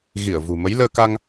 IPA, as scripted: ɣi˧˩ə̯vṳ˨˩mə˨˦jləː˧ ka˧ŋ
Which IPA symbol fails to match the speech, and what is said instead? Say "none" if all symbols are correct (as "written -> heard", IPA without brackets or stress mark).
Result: none